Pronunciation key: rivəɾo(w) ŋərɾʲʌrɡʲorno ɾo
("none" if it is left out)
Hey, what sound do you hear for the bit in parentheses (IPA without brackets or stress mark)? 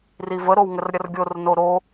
w